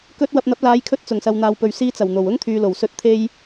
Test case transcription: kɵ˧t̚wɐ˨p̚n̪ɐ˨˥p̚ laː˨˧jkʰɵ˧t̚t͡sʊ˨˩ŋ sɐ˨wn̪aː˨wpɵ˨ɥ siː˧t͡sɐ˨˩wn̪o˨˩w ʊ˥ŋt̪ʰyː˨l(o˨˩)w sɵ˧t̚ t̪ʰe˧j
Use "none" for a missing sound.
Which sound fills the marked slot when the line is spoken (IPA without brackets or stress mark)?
o˨˩